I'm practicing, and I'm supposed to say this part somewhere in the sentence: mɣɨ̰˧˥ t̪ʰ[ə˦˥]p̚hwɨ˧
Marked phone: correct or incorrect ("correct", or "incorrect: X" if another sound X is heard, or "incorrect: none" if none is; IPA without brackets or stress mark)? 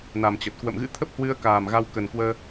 correct